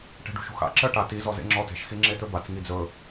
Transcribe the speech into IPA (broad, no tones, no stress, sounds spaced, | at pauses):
ʈ e̤ ɖ ṳ ʃ ṳ x a̰ ǁ ɜ ʈ a t i z ɔ z ḛ ŋ͡ǁ ɔ t e̤ ʃ x i ŋ͡ǁ e t̪ ɵ b a t͡s ŋ i d͡z ɵ